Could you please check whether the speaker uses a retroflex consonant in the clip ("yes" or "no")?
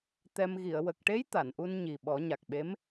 yes